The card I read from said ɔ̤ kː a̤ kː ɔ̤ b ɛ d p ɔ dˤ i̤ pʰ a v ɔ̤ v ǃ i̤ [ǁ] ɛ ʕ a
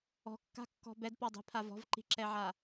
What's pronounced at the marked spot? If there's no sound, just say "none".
ǁ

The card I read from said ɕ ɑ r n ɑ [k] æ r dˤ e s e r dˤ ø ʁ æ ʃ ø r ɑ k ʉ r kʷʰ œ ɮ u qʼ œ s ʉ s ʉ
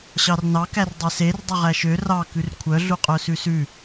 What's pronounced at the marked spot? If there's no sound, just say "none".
k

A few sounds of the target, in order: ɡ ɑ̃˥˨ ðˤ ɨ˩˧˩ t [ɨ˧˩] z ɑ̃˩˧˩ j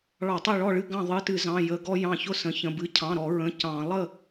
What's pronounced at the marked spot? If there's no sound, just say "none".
ɨ˧˩˧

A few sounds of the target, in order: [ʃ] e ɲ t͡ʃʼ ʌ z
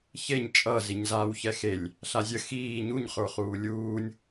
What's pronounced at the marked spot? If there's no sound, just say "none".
ç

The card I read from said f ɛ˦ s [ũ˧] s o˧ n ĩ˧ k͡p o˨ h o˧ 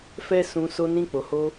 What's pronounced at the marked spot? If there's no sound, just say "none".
ũ˧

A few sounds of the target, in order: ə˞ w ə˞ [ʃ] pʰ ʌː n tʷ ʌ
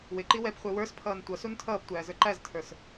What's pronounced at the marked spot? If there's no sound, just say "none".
s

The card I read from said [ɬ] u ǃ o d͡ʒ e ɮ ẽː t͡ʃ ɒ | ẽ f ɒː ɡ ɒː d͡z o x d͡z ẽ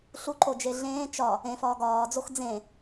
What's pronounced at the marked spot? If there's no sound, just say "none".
ɬ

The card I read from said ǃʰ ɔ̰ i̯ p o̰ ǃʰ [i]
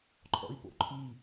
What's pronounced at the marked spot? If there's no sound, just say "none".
i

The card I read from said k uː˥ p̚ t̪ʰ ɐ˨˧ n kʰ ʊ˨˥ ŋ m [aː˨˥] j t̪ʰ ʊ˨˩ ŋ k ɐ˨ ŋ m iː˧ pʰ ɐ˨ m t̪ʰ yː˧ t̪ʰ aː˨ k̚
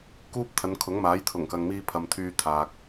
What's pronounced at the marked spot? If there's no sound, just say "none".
aː˨˥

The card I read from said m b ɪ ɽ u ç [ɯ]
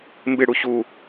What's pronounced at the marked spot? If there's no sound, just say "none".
u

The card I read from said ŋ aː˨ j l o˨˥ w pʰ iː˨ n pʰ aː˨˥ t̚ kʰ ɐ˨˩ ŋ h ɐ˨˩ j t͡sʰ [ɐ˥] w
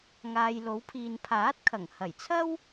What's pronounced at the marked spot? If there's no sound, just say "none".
ɐ˥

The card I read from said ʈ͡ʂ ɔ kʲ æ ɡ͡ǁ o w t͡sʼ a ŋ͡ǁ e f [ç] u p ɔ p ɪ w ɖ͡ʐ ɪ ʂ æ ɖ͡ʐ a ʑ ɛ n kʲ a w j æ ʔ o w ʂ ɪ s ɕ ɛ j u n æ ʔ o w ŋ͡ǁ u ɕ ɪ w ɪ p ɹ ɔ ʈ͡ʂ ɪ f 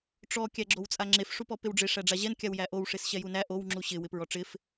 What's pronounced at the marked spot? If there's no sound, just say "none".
ʂ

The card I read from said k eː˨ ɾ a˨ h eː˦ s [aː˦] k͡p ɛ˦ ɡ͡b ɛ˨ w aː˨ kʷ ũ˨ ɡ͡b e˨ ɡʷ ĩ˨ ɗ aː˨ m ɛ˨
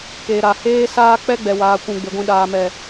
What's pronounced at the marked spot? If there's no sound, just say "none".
aː˦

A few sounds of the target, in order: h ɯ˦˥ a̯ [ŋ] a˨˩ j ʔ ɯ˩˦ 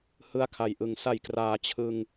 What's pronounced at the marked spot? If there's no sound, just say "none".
kʰ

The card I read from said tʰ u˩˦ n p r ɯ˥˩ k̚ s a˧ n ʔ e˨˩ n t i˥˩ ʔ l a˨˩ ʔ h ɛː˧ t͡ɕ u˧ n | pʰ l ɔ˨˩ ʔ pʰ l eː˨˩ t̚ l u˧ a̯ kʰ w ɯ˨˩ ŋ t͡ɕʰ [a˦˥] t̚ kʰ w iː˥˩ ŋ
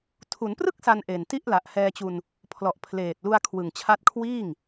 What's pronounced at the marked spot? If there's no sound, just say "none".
a˦˥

